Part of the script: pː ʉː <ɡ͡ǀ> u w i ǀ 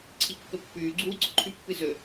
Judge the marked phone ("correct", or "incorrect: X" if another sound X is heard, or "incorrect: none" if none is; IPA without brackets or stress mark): correct